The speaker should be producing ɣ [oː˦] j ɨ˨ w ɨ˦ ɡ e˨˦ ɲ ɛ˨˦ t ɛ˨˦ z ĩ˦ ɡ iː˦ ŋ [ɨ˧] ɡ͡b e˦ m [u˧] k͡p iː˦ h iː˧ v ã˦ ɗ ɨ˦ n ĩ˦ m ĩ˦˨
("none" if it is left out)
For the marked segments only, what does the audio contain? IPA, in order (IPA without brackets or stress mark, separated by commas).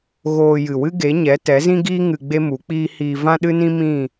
oː˧, ɨ˧, u˨˦